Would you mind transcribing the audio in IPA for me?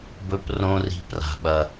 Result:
bɵ˦prõ˦ri̤˦ pra̤˦ɓɐ˦

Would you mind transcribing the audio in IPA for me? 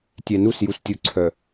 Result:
tʲɛ˨nu˦˨s ju˨stʲu˨ǀʰœ˨

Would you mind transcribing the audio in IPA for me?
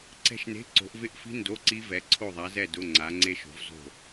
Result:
ǀɛ̤˦˨ʃne̤˧˥˧ ǀo̤˨˦ʔvɪ˦˥ʔfi̤˦˥ ndo˧˥˧ǀi˦˥vɛ˨˦ ǀʰo˦˨ðˤa˨˦zɛ˦˨ dʊ˧˥˧ŋ͡ǀa˨˦ ŋ͡ǀe˦˥ʃo̤˨˦vzo̤˦˨

